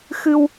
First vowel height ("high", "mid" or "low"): high